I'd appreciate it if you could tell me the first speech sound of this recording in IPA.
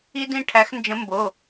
i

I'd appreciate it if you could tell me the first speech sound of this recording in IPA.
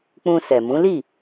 k͡p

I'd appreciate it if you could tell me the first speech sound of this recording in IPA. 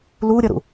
l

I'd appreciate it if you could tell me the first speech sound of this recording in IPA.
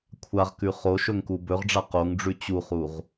kʷʰ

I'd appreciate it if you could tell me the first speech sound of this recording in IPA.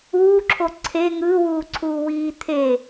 uː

